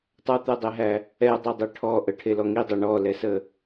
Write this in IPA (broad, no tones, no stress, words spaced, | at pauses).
tˤat̪ɛdˤeɦæ | ɛdˤɛdˤe ʈʰɔ ʔəʈʰelɔ ŋidˤɛ ɳɔlɛsə